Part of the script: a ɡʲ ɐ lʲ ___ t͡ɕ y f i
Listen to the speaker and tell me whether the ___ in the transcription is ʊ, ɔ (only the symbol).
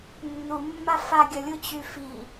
ʊ